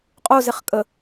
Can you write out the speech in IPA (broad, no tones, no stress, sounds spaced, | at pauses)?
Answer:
qʼ o z e χ kʼ ə